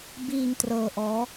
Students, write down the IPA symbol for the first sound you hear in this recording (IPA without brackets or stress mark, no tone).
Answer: b